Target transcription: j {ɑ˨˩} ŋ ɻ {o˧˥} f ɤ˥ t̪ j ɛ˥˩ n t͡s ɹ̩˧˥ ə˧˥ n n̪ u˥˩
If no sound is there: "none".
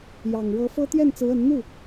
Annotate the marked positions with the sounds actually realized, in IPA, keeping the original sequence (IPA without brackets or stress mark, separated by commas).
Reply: ɑ˨˩, ɤ˧˥